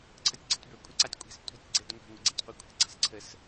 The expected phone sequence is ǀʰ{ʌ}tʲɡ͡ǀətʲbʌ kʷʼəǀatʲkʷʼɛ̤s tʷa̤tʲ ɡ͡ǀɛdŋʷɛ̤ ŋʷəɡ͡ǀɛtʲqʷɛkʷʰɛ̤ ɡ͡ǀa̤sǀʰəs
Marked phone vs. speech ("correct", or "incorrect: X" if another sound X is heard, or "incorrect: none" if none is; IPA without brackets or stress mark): correct